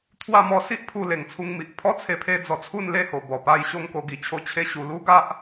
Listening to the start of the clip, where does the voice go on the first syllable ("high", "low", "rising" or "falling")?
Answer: falling